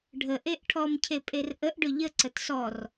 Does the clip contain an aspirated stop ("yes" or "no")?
yes